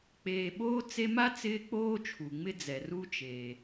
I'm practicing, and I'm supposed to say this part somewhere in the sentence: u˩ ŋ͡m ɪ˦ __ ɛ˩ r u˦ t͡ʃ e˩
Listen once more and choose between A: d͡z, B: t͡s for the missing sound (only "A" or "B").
A